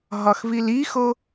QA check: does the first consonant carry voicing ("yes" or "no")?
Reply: yes